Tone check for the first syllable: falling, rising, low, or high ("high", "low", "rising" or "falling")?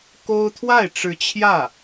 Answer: high